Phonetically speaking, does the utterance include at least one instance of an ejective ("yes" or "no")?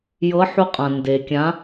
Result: yes